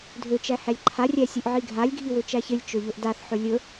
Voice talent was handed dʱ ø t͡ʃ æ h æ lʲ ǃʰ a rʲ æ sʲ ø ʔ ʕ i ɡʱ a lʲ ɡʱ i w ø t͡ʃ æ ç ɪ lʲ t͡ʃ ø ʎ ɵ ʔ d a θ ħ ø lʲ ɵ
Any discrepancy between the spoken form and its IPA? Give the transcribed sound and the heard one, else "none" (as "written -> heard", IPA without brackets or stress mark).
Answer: none